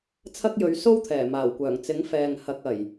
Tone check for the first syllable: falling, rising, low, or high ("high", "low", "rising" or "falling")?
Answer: high